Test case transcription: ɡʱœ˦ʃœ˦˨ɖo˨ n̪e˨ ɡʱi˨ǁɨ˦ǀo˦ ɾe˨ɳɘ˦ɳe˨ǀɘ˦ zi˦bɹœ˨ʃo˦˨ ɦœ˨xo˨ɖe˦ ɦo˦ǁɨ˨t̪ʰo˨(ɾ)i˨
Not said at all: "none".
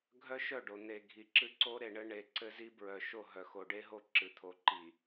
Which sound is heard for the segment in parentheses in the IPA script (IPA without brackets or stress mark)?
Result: ǃ